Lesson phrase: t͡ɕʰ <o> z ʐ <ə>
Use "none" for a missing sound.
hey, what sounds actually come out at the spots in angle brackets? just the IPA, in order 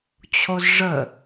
o, ə

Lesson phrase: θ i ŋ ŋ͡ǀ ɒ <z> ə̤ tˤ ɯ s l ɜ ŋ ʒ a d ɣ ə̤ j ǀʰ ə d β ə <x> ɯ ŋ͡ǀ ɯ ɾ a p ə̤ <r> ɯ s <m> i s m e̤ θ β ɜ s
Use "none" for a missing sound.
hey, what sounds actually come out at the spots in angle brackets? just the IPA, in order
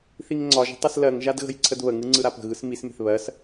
ʒ, ŋ, ɣ, m

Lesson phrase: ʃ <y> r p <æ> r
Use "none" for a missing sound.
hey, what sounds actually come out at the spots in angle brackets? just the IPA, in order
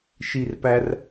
i, æ

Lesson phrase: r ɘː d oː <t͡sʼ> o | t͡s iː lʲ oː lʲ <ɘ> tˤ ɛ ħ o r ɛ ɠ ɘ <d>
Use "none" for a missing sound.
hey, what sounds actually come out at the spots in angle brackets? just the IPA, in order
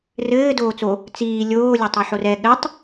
t͡s, ɘ, tˤ

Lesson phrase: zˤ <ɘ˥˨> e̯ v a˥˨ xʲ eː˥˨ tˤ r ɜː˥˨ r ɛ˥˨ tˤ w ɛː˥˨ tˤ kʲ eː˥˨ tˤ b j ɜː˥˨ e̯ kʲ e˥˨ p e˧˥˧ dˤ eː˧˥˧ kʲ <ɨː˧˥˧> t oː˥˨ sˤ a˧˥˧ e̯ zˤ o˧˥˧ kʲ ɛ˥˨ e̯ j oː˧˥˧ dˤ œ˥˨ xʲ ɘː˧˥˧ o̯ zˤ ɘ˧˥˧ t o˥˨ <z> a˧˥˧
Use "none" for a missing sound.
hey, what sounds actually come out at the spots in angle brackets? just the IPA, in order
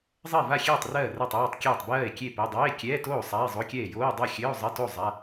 ɘ˥˨, ɛː˧˥˧, zˤ

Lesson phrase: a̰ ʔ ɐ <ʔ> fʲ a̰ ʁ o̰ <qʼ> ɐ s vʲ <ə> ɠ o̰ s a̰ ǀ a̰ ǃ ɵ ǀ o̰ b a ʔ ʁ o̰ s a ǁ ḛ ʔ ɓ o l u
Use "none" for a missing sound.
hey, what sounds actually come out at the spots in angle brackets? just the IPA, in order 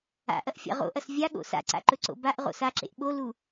ʔ, ʔ, a

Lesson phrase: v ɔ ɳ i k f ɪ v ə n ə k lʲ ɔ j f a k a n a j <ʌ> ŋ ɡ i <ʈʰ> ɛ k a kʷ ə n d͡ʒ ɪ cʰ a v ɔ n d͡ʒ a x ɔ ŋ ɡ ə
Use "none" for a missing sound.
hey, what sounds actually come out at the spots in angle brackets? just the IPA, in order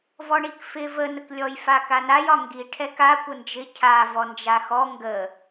ɒ, ʈʰ

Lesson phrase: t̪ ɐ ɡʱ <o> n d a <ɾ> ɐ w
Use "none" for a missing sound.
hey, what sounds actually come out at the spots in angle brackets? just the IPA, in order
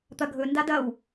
ɵ, d

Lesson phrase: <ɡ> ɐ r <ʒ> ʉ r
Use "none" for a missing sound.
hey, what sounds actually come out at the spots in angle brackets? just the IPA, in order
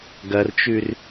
ɡ, t͡ʃ

